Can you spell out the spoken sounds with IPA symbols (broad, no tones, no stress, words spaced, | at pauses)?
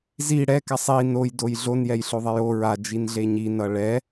zi ɽɛ kasˤi nojdoj ɮonjɛjɬoðˤɛj o ɹad͡ʒinɮe ɲinʌ ɭɛ